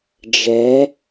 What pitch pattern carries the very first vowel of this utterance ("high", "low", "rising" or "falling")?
rising